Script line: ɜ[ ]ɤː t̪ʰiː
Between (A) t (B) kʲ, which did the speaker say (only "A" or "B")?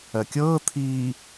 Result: B